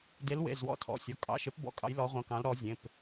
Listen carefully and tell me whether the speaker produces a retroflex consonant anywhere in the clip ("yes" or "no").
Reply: no